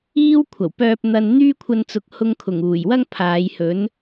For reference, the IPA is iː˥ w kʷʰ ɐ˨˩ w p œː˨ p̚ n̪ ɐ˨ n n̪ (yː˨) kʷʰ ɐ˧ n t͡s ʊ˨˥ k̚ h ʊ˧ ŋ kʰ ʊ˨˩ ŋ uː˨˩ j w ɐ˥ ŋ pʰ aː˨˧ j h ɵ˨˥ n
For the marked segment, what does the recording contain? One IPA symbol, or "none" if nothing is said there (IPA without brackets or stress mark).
yː˥